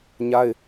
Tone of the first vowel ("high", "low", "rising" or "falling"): high